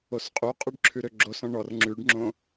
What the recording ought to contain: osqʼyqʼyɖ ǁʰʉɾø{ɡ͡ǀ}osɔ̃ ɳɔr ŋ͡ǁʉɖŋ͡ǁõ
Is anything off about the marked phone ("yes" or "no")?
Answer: yes